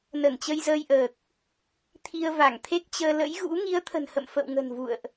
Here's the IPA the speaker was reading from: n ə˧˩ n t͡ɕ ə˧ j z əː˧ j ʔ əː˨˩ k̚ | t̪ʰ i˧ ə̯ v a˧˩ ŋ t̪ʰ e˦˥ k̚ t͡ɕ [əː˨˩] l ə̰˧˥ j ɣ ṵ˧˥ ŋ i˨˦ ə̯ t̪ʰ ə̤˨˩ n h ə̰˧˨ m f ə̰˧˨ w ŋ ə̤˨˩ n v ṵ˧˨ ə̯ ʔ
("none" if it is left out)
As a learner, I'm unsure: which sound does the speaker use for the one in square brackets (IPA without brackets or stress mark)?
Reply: əː˧